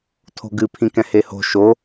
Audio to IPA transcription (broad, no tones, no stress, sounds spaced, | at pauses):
tʰ o̤ ɡ ɨ pʰ ĩ k ɛ̃ h e h o̤ ʃ o